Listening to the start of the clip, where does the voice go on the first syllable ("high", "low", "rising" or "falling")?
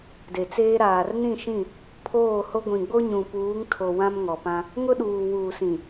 low